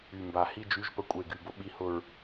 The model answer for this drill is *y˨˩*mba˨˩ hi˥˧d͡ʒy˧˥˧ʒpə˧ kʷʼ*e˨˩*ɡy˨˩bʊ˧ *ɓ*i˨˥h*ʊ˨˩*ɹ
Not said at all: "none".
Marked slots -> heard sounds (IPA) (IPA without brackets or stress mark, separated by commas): y˨˩, e˨˩, ɓ, ʊ˨˩